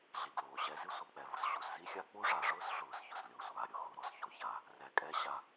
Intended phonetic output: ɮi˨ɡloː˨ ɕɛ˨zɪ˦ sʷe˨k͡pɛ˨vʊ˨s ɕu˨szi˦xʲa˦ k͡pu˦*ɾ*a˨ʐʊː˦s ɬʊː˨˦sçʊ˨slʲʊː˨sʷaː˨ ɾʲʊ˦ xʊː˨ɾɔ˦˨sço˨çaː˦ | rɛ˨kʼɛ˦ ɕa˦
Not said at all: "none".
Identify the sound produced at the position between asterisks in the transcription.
ʐ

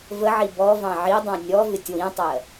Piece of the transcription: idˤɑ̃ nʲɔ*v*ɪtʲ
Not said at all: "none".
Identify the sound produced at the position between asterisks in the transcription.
v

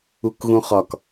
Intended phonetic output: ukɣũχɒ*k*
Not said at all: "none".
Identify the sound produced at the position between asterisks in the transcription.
k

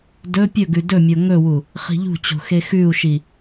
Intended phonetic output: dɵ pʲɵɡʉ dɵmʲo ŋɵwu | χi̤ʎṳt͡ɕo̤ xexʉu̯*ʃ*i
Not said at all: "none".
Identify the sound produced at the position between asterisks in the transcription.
ʃ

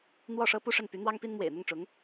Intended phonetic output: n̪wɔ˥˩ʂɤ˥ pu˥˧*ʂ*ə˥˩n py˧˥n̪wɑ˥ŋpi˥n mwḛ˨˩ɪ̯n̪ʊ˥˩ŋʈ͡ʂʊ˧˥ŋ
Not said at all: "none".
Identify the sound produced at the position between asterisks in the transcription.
ʂ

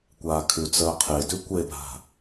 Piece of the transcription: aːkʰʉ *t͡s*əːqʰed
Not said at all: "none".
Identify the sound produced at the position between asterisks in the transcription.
t͡s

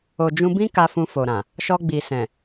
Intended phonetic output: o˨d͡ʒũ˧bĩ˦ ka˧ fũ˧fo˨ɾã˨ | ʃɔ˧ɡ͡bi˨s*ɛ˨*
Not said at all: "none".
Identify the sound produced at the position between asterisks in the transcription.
ɛ̃˨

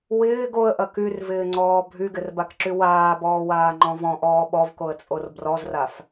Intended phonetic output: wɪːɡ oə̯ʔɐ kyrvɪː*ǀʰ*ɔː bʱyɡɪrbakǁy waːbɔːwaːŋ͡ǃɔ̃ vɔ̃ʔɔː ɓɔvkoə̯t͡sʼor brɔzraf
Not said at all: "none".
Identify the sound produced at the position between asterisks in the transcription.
ŋ͡ǀ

